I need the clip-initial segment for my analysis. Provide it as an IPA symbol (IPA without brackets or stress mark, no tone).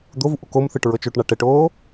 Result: d̪